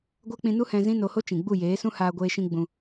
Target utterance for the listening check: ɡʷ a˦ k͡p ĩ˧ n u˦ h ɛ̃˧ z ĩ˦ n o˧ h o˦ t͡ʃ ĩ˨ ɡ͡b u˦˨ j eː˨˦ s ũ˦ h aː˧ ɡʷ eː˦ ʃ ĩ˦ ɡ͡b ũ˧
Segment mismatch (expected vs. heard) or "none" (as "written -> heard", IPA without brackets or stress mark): none